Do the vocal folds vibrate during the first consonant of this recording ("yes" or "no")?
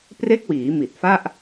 no